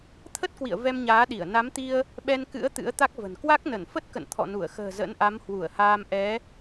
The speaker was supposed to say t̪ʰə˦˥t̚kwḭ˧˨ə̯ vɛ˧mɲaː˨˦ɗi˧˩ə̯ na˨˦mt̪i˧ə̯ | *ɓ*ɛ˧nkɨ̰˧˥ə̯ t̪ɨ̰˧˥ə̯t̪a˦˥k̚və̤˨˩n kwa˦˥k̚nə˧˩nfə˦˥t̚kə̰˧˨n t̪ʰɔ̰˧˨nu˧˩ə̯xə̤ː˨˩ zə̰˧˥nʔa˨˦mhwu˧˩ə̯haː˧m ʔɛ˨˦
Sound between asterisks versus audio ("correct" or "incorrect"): correct